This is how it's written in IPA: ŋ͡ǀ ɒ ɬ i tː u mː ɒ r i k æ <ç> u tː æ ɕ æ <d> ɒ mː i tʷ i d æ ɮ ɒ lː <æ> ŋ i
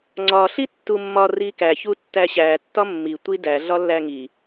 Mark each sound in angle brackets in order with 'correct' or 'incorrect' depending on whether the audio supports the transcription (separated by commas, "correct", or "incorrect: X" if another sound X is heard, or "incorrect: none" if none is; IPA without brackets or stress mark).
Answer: correct, incorrect: tː, correct